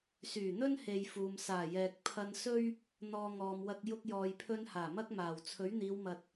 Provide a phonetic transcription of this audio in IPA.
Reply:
s yː˨˩ n̪ ɵ˥ n h e˨ j f uː˨ m s aː˨˩ j ɛː˨ k̚ pʰ ɐ˧ n s ɵ˥ ɥ | n̪ ɔː˧ ŋ ɔː˨ m w ɐ˧ k̚ j ʊ˧ k̚ j ɔː˨ j pʰ ɵ˧ n h aː˨˩ m ɐ˥ k̚ m aː˨˩ w t͡sʰ ɵ˨˥ ɥ n̪ iː˨˧ w m ɐ˨ t̚

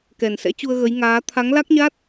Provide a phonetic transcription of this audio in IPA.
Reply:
k ɛ˨˩ n s ɛ̰˧˥ t͡ɕ u˧ ə̯ ɣ ə˨˦ j ŋ aː˨˦ t̪ʰ a˨˦ ŋ l a˦˥ k̚ ɲ a˦˥ t̚

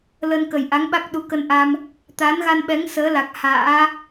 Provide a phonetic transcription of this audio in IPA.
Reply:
l ə˧ n k ə˨˩ j ʔ a˨˦ ŋ ɓ a˦˥ k̚ ɗ u˨˦ k ə˧ n ʔ a˧ m | t̪ aː˨˦ n ɣ a˧ n ɓ ɛ˨˦ ŋ s əː˨˦ l a˨˩ k̚ h a̰ː˧˥

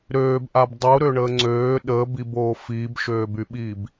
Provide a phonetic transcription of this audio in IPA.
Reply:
ɾ øː b ʔ a b dˤ u ɾ ø ɳ əː ŋ͡ǀ øː ɗ əː b i b oː f iː b ʃ øː b y ɓ iː b

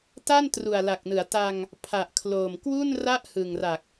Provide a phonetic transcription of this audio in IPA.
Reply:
t a˥˩ n t r u˨˩ a̯ l a˨˩ k̚ n ɯ˩˦ a̯ t a˧ ŋ | pʰ a˨˩ ʔ kʰ l oː˨˩ m k w u˥˩ n r a˥˩ ʔ h ɯ˨˩ ŋ r a˨˩ k̚

